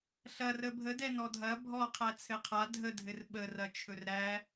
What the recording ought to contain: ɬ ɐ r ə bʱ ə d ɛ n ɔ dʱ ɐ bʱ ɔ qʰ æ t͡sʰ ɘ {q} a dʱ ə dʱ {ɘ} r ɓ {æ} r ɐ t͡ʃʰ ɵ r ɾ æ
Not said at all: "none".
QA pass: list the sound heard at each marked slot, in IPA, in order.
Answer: qʰ, ɘ, ə

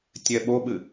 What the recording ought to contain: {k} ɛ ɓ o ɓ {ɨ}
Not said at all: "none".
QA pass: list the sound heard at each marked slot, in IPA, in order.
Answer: tʲ, ɨ

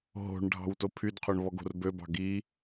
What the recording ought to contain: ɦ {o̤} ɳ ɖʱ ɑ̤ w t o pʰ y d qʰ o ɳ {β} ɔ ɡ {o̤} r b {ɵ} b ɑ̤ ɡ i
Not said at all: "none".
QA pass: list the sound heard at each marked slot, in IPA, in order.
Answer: o̤, β, o̤, ø

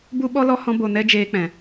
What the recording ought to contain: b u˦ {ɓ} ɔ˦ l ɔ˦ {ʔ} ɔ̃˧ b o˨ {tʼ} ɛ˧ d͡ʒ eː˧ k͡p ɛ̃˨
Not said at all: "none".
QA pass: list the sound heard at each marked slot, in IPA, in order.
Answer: ɓ, h, n

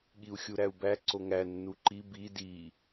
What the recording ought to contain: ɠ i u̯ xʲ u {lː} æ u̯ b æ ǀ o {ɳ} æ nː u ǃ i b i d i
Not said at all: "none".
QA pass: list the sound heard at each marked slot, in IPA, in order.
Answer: ɾ, ŋ

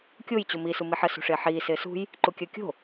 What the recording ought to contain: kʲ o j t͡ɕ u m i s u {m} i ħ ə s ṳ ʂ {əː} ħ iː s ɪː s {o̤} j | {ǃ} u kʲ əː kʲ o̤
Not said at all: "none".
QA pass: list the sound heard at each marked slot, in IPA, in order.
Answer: m, ɪː, ṳ, ǃ

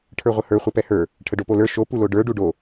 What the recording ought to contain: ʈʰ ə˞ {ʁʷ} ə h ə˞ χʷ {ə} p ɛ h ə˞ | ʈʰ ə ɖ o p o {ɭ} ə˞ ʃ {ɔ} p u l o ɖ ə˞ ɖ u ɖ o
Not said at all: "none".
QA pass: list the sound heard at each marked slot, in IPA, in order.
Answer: ʁʷ, ə, l, o

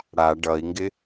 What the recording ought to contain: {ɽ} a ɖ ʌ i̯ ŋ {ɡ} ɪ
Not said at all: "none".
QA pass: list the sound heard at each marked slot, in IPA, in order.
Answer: ɽ, ɡ

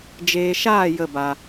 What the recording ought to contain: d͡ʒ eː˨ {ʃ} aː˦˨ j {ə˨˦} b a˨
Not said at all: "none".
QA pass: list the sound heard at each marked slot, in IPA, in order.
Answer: ʃ, ə˦˨

